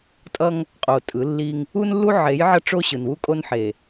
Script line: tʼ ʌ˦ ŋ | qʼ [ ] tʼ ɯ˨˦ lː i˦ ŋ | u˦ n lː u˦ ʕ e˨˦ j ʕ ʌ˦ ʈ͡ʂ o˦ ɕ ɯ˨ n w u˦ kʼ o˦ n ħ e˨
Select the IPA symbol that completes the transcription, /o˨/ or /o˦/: o˨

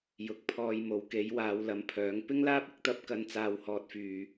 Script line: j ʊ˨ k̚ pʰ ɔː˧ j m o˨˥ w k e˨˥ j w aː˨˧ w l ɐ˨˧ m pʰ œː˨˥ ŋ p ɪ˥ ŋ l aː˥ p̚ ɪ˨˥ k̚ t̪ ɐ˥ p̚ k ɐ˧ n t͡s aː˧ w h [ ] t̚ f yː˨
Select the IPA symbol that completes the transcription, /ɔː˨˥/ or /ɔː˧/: ɔː˧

